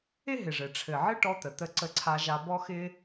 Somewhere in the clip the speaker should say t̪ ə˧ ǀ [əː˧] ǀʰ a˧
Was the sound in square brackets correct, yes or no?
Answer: no